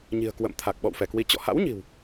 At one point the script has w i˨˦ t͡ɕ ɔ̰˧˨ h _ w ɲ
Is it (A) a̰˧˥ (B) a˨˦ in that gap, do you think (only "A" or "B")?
A